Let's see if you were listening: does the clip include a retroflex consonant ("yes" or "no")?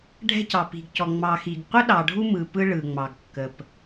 yes